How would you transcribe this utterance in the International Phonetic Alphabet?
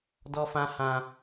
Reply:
dɔ˦fã˦hã˦

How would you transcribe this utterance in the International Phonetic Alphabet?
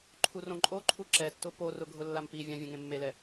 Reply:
ǃʰurõǃʼoǃʰu ǁɛtːʊ porʊ ɡʱʊlːampivʲã vʲẽŋẽmːelɛ

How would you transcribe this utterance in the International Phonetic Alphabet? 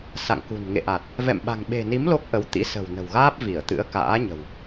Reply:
sa̰˧˨ŋkṳ˨˩n ŋḛ˧˨ʔa˨˩t̚ | vɛ̰˧˨m ɓa̤˨˩ŋɓe̤˨˩ni˨˦m lo˦˥k̚ʔə˨˦w t̪ḭ˧˥sə̤˨˩wnə̤˨˩wɣaː˦˥p̚ vi˧˩ə̯t̪ɨ̰˧˥ə̯ ka̰ː˧˥ɲə̤˨˩w

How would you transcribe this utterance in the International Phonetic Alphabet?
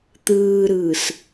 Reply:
t̪ɯːɾɯːs

